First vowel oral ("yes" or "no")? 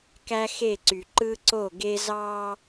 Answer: yes